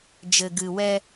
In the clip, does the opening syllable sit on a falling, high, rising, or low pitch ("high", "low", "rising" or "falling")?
low